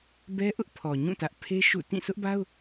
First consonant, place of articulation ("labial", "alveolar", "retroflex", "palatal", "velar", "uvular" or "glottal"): labial